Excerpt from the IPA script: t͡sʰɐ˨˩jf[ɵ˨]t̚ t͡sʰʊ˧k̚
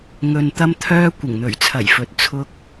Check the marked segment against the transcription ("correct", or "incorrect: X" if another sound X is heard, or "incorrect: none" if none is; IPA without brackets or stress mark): incorrect: ɵ˨˥